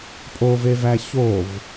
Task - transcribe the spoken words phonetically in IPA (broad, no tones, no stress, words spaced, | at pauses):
pʼovevæ çov